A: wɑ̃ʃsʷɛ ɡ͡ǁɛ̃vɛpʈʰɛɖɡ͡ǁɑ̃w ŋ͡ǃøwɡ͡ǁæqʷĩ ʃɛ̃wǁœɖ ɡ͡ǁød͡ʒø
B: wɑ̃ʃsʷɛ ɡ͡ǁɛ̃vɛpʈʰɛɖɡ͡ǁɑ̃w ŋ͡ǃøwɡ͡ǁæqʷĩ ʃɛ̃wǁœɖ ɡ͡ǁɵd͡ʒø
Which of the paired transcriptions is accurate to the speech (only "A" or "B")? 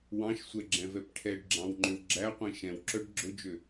B